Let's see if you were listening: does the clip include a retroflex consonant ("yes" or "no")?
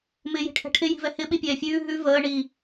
yes